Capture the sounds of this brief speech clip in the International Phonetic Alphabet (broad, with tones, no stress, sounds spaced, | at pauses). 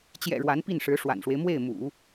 t͡ɕ j ɛ̰˨˩ ɻ w a˧˥ n p i˥˩ n ʂ ɻ̩˧˥ ʂ w a̰˨˩ n ʂ w e˦ ɪ̯ m w e˥˩ ɪ̯ m ṵ˨˩˦